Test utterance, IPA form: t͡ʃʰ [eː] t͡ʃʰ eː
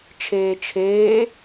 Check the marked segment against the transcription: correct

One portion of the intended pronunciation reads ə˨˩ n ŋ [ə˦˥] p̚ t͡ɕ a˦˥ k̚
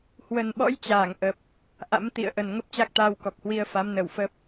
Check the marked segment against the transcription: correct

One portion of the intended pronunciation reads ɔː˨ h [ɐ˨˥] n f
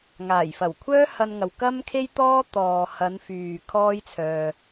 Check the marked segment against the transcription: incorrect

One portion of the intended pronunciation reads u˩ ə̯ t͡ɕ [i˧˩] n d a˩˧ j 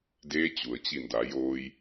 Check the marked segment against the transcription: correct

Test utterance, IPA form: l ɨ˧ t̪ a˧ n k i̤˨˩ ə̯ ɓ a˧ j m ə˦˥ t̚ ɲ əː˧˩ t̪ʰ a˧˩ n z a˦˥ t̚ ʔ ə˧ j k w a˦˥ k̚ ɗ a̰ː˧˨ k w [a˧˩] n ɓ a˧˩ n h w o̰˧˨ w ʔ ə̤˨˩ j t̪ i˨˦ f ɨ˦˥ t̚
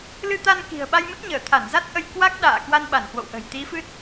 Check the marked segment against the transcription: incorrect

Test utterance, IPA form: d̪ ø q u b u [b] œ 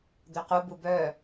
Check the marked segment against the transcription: correct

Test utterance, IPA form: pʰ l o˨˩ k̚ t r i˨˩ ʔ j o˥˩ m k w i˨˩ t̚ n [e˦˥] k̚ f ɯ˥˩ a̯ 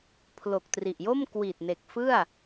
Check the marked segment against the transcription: incorrect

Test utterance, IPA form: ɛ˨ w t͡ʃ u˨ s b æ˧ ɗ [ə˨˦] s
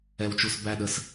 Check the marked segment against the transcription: correct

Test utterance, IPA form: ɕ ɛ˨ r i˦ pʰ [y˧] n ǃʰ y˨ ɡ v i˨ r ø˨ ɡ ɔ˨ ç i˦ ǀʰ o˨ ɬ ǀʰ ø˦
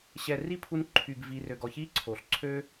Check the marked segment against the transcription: incorrect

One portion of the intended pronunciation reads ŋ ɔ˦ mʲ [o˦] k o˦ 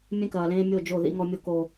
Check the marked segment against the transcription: correct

